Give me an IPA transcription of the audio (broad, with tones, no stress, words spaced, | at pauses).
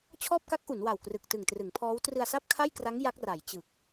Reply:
t͡ɕʰɔː˥˩p̚ka˦˥k̚ʔu˩˦n wa˨˩wkrɯ˨˩k̚tɯ˨˩ŋ trɯ˩˦ŋ pʰɔː˦˥w trɯ˧a̯sa˥˩p̚kʰa˥˩jkra˦˥ŋ ja˦˥k̚ ra˩˦jt͡ɕɯ˨˩k̚